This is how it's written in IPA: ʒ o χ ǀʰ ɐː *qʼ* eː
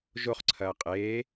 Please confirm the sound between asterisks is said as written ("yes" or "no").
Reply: yes